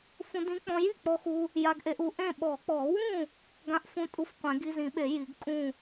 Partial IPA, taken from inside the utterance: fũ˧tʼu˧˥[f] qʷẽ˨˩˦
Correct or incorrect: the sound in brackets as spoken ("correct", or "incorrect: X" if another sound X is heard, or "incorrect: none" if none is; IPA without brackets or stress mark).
correct